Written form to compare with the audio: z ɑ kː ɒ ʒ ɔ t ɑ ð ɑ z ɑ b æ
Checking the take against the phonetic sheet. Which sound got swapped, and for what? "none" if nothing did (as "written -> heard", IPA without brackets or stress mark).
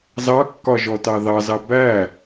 none